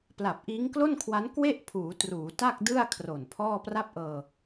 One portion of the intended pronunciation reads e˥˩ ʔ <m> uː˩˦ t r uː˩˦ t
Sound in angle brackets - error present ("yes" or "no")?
yes